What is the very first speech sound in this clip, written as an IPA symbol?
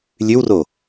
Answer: lʲ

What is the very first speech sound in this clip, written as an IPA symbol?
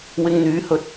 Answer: w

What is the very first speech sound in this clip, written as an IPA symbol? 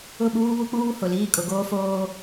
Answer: ʊ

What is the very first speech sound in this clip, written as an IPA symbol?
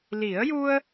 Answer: l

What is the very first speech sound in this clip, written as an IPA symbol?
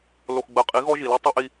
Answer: l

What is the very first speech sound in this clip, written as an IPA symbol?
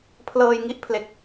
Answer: pʰ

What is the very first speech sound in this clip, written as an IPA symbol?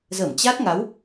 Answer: z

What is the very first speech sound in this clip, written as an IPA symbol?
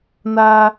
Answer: n̪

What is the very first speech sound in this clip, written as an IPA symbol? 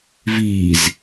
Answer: v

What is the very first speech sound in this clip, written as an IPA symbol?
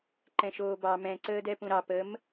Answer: ǃ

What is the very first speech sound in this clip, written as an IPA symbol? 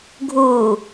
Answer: ɡʱ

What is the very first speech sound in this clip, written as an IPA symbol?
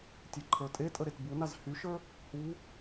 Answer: tʲ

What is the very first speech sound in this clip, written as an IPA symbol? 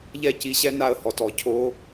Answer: ʎ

